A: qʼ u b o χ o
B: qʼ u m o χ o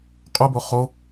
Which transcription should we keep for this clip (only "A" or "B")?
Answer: A